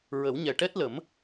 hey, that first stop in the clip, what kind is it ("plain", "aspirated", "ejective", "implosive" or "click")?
plain